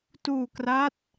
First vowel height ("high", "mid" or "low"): high